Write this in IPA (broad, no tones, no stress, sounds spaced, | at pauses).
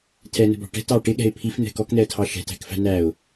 tʰ ɛ n ə̤ b ɑ̤ ʈ ɛ̤ t ɑ ʈ ɪ ɠ ɛ̤ ɪ̯ pʰ i f n̪ ɛ̤ k ɔ k n̪ ɛ ə̯ tʰ ɑ ʃ ɛ̤ t æ̤ k f æ̤ n æ ʊ̯